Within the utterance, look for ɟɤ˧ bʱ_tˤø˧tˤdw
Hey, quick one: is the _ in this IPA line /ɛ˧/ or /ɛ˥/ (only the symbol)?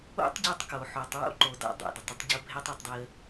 ɛ˥